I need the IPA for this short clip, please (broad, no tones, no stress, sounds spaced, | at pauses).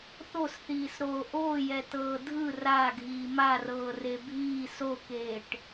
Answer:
θ o s θ iː s ɾ oː ʔ oː j ɛ t ɤː dʱ ɯ r a ɡʱ iː m a r ɤː r e bʱ iː s o k eː ʈ